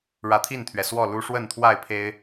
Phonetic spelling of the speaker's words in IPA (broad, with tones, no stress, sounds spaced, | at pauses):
ɻ ä˨˦ t̪ʰ i˥˨ n t̪ʰ ɥ ɛ˩ s w ɔ˥˨ l u˦ ʂ w ə˥˨ n t̪ʰ w a˥˨ ɪ̯ pʰ e˦ ɪ̯